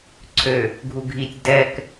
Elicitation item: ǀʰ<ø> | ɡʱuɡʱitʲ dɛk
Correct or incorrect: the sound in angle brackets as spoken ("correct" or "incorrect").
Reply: correct